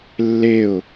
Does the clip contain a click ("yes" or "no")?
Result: no